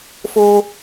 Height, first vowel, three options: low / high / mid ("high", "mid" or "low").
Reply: mid